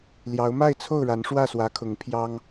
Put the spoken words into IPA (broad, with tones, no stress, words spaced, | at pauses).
ljɑ˨˦ʊ̯ma˥˨ɪ̯t͡sʰo˥˨ʊ̯ɻa˨˦n ʂwä˥˨swä˨˦kʰʊ˨˦ŋ pʰjɑ˦ŋ